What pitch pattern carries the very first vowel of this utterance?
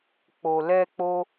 low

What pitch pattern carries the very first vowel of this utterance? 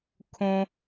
low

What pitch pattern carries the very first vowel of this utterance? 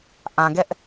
low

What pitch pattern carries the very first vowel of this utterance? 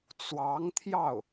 rising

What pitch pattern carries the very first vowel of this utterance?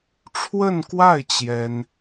falling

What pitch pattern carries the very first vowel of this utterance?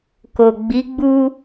low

